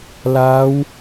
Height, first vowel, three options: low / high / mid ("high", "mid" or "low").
low